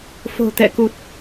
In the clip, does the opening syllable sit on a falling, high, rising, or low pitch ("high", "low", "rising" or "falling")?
low